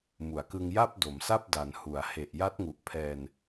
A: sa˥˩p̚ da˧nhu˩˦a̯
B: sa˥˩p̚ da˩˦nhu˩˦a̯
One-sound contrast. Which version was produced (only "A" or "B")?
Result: B